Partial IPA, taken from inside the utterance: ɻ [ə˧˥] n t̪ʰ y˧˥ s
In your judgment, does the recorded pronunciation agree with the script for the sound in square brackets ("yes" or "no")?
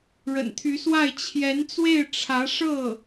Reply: no